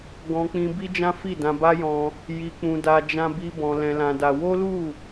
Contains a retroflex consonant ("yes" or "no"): no